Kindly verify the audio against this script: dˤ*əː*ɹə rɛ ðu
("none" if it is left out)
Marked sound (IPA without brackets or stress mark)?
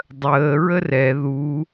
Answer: əː